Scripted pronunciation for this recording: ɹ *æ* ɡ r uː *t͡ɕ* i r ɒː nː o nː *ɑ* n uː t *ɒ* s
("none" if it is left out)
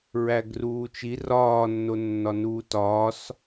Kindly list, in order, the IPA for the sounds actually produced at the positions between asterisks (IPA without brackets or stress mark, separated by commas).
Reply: æ, t͡ʃ, ɒ, ɒː